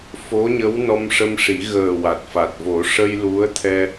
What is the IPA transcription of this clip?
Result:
f o˧˥ ɲ ə˧˥ w n ɔ˧ m ʂ ə˧ m ʂ i˨˩˦ ɣ əː˨˩ w a˨˩ t̚ f a˨˩ t̚ v o˨˩˦ ʂ ə˧ j l u˧˥ ə̯ t̪ʰ ɛ˧

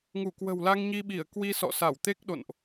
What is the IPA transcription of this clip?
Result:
ŋ u˧˩ k w ə̤˨˩ w l a˧ ŋ ɲ i˧ ɓ i˧˩ ə̯ k w i˧ s ɔ̰˧˨ s a˧˩ w t̪ e˦˥ k̚ ɗ o̰˧˨ n ʔ

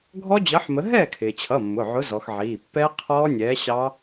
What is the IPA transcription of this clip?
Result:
ɡʱ ɔ˦˥ d͡ʑ ʌ˨˥ ħ m ə˨˥ ɦ ɛː˥˩ kʰ ɪː˩ t͡ɕʰ ʌ˩˧˩ mː ʊ˩˧˩ ʕ ʊ˨˥ z ɔ˩˧ x ʕ iː˩˧˩ pː ɛ˦˥ qʰ ɔː˦˥ nʲ ɛː˨˥ ɕ ɑ˦˥

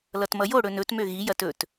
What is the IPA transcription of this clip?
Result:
l ʌ t m ʌ j o ɽ ɵ n ɵ t m ø ɣ i j ɐ t ɵ t

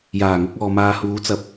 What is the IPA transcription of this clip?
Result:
j aː˨˩ ŋ ʊ˧ k̚ ɔː˨ m aː˨ h uː˨˧ t͡s ɐ˨˥ p̚

